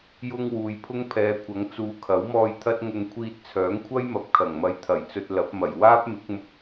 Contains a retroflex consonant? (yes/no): no